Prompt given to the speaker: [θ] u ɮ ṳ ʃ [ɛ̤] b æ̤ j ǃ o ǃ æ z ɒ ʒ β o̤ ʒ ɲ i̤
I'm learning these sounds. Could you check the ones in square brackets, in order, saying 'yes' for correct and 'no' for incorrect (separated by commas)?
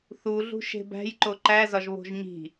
yes, no